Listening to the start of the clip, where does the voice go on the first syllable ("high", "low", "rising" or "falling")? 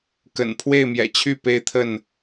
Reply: low